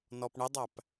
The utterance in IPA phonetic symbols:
n ɔ p ɳ ɪ dˤ æ p

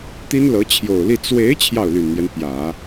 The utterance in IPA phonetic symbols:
t̪ i˥ n l ɤ˧˥ t͡ɕʰ j o˨˩ ʊ̯ l i˥˩ t͡s w e˧˥ ɪ̯ t͡ɕʰ j ɑ˥˩ ʊ̯ l y˨˩ n n̪ j ɛ˦ n p j ä˨˩˦

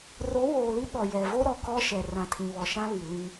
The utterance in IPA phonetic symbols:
r o˨˦ w oː˨ l i˦ ɓ ɔ˨ j ɛ˨ v o˦ ɾ ɔ˨ k ɔ˦ ʃ ɛ˨ r ã˨ tʰ ĩ˨ β ɔ˨ ʃ ã˦ β i˨ l ĩ˦

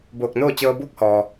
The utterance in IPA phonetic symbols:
b oː˧˩ k̚ n oː˥˨ t͡ɕ ɤː˧ b uː˥˨ k̚ h ɔː˩

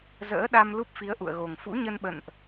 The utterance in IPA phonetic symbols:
z ə̰ː˧˥ ɗ a˧ m l u˦˥ p̚ f i˨˦ ə̯ ʔ ṵ˧˨ ə̯ ɣ o˨˩ ŋ f ṵ˧˥ ɲ ə˧ n ɓ ə̰˧˨ n ʔ

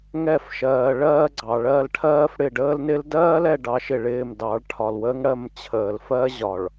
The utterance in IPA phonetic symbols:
ŋ ɛ˦˨ f ʃ ɜː˨ ɭ ɜː˦ ɡ͡ǀ ɑ˨ ɭ ɜ˦˨ l ʈʰ ɜː˦ f ɽ ɪ˦˨ ɖ əː˦ l n ɪ˦ l d ɜː˦ l ɛ˨ ɖ ɑ˨˦ ʃ ɪ˨ ɭ ɪː˦˨ m d ɑ˨˦ ɭ ʈʰ ɒ˨ l w əː˦ ŋ ɽ ɜ˦˨ m t͡ɕʰ əː˨ l f ɜ˦ ʑ ɒ˨ ɭ

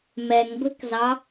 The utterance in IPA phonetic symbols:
m ɛ ŋ ɡʷ ɛ̤ k z ɑ

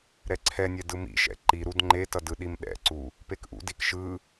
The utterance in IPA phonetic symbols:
ɾ ɛ ǀʰ ɛ nʲ ɛ d ɯ m ḭ ʃ ɛ̰ ǃ i ɾ u d ŋ͡ǃ e t ʌ d ɯ ɗ i m ɗ ɛ̰ ǀ u | p e k ʔ ṵ d i k ʃ ɯ

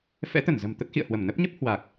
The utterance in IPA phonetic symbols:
f ɛ̰˧˥ t̪ ə˧˩ n z ə̤˨˩ m t̪ ə˦˥ t̚ x ḭ˧˨ ə̯ h w ə˧˩ m n ə˦˥ p̚ ɲ ə˦˥ p̚ h w a˨˩ k̚

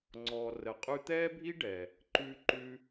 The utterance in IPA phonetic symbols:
ŋ͡ǀ ɔː˩ r ə˩ qʼ ʉ˧ t̪ ɛː˥ bʱ i˥ ɖ ɛː˩ | ǃ ʉː˧ ǃ ʉː˧

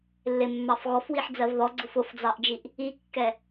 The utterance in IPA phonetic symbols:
lː ɪ mː ɑ f ɣ ɔ f w i ħ d͡z ɜ v ð ɔ ɡ͡ǀ ʊ f ʊ f d͡z ɑ ʔ d͡ʒ i ʔ | i kː ɛ

